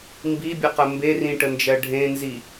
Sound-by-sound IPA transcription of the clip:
mbibʲəqə mberĩʈənd͡ʒɜ ɖʱẽnzi

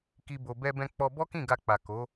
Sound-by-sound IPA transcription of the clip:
ki˧ bo˧ bɛ˧bɛ̃˧ k͡pɔ˧ bɔ˦kĩ˦˨ɡa˧k͡pa˨ ko˨˦

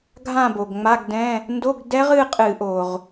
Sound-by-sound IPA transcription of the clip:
ɡʱã˥˧bo˩ɡŋ͡ma˧˥˧ɡdɛ̃˧˥˧ | ndo˧˥˧ɡdɛ˦˥ʁ ɨ˥˧qʼɨ˧˩˧ʔo˩ʁ

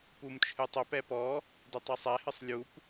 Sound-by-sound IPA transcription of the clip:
pumt͡ʃʰɨtˤœp ɛpɔ | dɨtˤɛsˤɛhɨsˤ lʲup

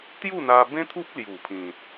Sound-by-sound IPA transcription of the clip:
t̪ju˥˧n̪a˧bẽ˦t̪ʰu˦p̚ lju˨˩pʰĩ˨t̚

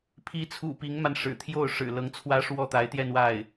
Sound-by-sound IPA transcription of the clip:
pʰi˧˥t͡sʰṵ˨˩ pi˧˥ŋma˧n ʂɻ̩˨˩t̪ʰjo˥˩ʊ̯ ʂɻ̩˨˩ lɤ˧˥ŋt͡sʰwä˥ʂwɔ˥˩ t̪a˧˥ɪ̯t̪jɛ˥˧nwa˥˩ɪ̯

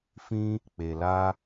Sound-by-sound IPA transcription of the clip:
fĩ˧ | k͡pe˨la˧

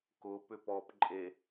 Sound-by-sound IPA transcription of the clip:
kʊ pʏpɔp ǃʼe

